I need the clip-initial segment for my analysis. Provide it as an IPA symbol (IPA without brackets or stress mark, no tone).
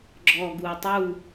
ɡ͡ǁ